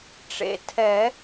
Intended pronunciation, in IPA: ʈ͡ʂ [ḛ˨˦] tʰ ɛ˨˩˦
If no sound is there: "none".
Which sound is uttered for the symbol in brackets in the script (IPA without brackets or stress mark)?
ḛ˨˩